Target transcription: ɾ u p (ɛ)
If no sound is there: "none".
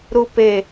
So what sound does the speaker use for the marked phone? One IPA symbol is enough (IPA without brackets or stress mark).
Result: e